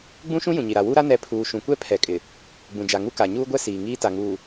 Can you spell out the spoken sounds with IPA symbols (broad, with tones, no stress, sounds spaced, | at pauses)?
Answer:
ɡ͡b ũ˦ ʃ ũ˦ j ũ˨ ɲ i˨ ɾ a˨ w u˦ ɾ a˦ n ɛ˨˦ pʰ uː˨ ʃ ũ˨ kʷ ɛ˦ pʰ ɛ˨ kʼ ɪ˨ | ɡ͡b ũ˨ d͡ʒ a˨ ŋ u˦ k a˨ ɲ uː˦ ɡʷ ɛ˦ s iː˨ ŋ iː˦ t a˨ ŋ uː˨